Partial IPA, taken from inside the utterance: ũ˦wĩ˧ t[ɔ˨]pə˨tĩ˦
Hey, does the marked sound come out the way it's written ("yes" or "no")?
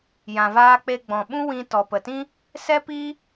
yes